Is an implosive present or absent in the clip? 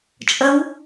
absent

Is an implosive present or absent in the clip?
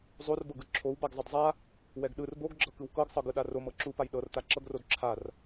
present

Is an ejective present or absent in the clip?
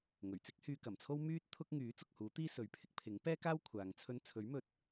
absent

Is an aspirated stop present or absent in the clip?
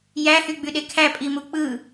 present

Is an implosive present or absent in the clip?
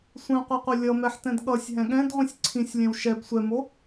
present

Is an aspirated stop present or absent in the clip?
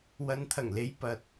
present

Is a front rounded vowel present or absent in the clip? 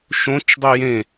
present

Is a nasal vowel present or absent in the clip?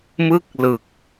absent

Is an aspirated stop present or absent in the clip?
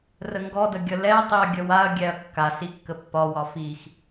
absent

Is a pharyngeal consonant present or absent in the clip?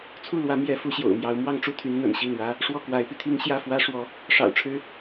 absent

